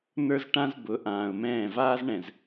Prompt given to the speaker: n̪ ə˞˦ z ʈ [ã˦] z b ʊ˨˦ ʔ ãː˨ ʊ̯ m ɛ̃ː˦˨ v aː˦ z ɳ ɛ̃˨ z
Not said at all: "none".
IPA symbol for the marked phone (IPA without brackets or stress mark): ã˦